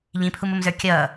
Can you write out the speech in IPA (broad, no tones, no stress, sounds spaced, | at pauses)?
ʎ ĩ pʰ u m ʊ m z ə˞ kʲ ʌː